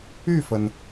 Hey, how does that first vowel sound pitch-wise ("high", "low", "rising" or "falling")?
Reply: falling